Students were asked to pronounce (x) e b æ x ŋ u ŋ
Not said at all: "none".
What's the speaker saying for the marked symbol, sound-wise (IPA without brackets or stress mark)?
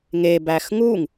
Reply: ŋ